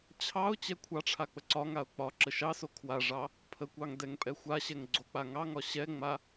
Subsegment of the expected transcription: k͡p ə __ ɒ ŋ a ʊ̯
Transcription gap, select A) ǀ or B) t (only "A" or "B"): A